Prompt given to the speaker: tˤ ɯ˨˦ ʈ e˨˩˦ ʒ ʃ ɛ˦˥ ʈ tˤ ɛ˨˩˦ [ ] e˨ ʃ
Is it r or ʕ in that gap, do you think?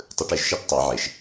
ʕ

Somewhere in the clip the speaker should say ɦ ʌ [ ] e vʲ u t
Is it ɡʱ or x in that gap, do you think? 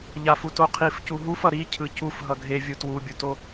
ɡʱ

